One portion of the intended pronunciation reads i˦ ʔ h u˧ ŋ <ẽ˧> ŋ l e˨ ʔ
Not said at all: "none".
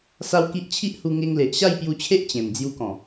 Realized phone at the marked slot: e˧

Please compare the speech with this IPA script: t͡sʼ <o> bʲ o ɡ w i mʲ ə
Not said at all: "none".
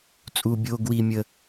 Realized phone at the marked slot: u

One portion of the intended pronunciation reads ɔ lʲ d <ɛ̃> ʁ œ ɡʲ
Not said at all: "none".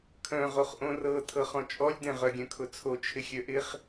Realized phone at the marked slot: ɛ̃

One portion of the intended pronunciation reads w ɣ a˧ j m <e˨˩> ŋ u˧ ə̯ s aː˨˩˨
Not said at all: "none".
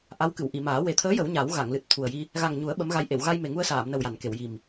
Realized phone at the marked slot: e˨˩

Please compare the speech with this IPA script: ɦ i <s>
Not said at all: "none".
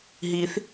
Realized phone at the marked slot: θ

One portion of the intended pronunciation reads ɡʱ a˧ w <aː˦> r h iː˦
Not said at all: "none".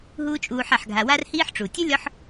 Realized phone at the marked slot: a˦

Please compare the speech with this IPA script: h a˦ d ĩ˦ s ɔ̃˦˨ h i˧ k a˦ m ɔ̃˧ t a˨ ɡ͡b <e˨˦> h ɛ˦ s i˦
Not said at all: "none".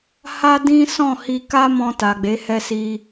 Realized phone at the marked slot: e˨˦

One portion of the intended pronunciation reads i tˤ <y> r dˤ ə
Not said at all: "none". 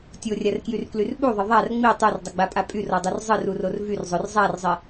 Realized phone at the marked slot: ø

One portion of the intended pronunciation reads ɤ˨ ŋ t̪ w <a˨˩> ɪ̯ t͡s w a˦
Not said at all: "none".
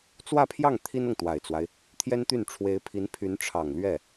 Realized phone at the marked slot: a˨˩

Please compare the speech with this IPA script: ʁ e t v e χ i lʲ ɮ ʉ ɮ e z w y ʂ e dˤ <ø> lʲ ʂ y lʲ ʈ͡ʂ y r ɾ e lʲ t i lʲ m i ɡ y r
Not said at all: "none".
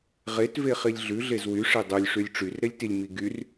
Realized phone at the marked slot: ø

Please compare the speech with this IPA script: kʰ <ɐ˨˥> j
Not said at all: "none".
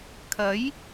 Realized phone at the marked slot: ɐ˨˥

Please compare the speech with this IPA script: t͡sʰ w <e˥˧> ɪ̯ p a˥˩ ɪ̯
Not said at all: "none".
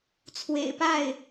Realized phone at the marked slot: ḛ˨˩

